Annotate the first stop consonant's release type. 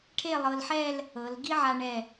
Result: aspirated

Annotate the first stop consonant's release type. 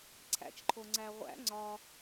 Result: click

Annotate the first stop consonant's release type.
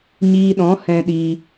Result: implosive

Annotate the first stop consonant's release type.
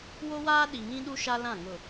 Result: implosive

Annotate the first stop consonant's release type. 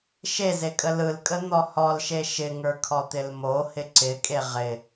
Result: ejective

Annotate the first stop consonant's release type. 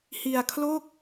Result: aspirated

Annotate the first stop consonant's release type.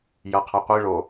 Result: aspirated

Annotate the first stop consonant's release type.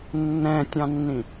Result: plain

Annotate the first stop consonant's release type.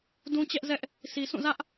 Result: plain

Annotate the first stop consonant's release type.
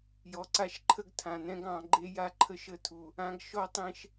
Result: click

